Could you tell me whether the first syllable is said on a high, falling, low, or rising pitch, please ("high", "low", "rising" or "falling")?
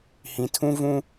low